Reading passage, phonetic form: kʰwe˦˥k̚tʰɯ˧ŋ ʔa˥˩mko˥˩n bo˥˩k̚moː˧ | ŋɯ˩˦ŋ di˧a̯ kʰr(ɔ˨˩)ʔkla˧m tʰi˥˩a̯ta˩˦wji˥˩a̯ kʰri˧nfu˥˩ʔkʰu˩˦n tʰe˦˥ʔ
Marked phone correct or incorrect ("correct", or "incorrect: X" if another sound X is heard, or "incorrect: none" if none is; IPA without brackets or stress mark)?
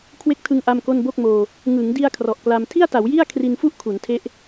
correct